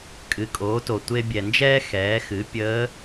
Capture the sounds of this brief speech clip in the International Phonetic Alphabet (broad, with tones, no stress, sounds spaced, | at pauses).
kʼ ɨ˩˧ kʼ oː˩˧ t o˩ tʷ e˧ bʲ ɛ˩ n d͡ʒ ɛː˥ x ɛː˩˧ x ɨ˩˧ pʲ əː˧˥